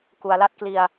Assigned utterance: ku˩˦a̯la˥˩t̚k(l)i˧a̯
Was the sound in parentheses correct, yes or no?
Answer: yes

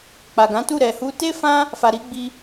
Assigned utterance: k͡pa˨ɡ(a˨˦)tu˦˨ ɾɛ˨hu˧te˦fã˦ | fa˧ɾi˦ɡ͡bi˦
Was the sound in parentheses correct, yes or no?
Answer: no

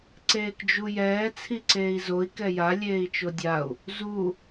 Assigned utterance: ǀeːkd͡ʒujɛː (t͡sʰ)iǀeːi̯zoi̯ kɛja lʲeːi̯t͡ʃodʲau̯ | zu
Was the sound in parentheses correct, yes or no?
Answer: yes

